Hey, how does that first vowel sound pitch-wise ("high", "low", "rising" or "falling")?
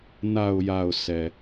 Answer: low